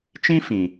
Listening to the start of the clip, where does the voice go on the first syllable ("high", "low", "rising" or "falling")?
high